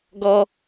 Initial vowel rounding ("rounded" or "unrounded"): rounded